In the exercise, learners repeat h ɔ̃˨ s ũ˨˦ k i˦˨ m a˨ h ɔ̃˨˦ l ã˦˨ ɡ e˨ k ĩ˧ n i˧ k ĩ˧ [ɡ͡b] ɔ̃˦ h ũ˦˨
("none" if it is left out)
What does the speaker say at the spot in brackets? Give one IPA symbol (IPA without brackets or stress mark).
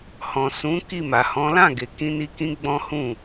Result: ɡ͡b